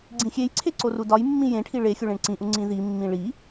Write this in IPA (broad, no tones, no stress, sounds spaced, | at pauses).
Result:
ɡ͡ǀ ĩ xʲ e j ǀʰ e ǀ o r u d ɒ j mː ĩ j ẽ ʈʰ i ɭ e xʲ u ɭ ẽ ɳ ǀ ĩ ʔ u ŋ͡ǀ ĩ ð i mː ĩ ɭ i